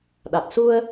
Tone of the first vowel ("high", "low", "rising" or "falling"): low